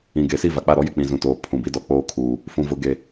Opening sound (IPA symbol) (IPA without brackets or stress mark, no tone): ĩ